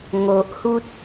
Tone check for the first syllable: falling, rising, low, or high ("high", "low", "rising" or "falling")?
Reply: low